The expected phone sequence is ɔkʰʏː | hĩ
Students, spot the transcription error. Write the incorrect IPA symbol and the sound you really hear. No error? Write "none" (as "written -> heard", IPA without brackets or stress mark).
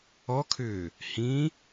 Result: none